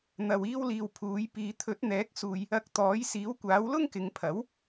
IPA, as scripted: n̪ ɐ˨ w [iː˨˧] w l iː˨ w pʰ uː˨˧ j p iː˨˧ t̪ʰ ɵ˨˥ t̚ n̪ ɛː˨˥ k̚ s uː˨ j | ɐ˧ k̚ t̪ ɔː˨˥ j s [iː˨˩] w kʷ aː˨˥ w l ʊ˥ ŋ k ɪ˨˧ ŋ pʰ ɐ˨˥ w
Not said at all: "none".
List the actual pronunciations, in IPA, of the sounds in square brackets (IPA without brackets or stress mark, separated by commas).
iː˧, iː˨˥